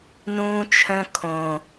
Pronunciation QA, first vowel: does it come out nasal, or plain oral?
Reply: nasal